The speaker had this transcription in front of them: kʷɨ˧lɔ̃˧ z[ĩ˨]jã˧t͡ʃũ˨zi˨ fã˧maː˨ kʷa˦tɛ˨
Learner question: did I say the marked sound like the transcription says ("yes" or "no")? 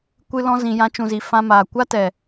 yes